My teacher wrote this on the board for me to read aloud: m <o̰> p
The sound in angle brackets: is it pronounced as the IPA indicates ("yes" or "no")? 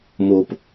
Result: no